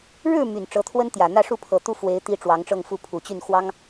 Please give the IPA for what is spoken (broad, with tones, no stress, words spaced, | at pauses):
ɻɻ̩˥˩ my˨˩nʈ͡ʂɤ˧˥t̪ʰwə˥nt̪jä˨˩ n̪ä˥˧ʂu˥˩pʰɤ˨˩t̪u˥˩ fwe˧˥ɪ̯t̪i˧˥ ʈ͡ʂwɑ˧˥ŋʈ͡ʂɤ˥˧ŋfu˥˩ pʰu˨˩t͡ɕy˥˩n xwɑ˥ŋ